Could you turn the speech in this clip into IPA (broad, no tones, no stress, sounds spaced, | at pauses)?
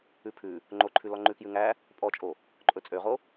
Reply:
ʉ pʰ ʉ | ŋ͡ǃ o ǃʰ ʉ l ɔ ŋ͡ǃ ʉ k j ʉ ŋ æ | pʼ ɔ t͡ʃʼ o | ǃʼ ɵ t͡sʼ ø ʁ o